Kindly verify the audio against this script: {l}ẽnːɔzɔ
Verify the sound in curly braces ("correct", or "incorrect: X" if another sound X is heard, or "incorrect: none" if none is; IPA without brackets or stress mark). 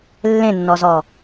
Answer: incorrect: lː